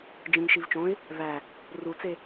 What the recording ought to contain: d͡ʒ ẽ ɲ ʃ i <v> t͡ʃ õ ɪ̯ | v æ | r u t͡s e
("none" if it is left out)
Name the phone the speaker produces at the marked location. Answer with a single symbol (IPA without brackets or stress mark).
v